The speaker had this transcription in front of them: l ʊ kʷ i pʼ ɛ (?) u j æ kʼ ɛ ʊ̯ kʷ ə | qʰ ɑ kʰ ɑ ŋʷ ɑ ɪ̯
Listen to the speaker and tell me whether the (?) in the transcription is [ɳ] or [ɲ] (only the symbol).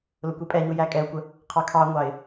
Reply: ɲ